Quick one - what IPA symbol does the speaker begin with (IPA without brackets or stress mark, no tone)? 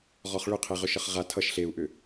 ʁ